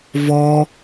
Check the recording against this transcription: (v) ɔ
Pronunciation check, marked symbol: correct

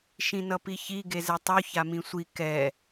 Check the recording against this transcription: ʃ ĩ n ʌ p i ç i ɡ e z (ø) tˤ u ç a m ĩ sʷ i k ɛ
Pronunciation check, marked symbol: incorrect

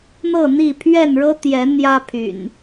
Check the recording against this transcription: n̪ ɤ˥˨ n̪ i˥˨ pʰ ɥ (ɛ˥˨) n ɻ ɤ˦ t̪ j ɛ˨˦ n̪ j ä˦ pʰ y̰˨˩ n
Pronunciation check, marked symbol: correct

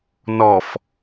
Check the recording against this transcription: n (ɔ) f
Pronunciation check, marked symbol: correct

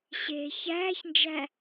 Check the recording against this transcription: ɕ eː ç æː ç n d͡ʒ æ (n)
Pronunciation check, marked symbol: incorrect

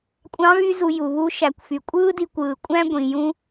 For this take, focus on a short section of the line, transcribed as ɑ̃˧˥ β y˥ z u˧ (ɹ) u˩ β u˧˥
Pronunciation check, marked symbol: incorrect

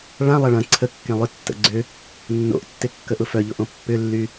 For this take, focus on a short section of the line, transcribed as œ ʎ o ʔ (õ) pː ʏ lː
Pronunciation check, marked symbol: correct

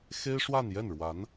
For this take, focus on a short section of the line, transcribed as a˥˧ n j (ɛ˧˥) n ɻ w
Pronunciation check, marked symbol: incorrect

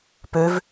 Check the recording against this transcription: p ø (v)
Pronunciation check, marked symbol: correct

